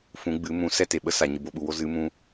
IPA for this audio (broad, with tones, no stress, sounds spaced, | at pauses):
f ũ˨˦ ɡ͡b ɨ˨˦ m ũ˨˦ s ɛ˦ t e˨ ɓ ə˦ s a˨ ɲ ɨ˨ b o˧ ɓ u˨ w o˦ z ɨ˨˦ m ũ˧